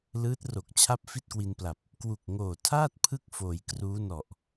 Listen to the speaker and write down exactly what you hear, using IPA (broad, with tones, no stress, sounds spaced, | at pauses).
l ɯː˦˥ t̚ r o˨˩ k̚ t͡ɕʰ a˥˩ p̚ f i˥˩ t̚ k w i˧ n p l a˨˩ p̚ | k w u˨˩ k̚ ŋ oː˨˩ tʰ aː˥˩ t̚ pʰ ɯ˥˩ k̚ f oː˩˦ j k r uː˦˥ n ɔ˨˩ ʔ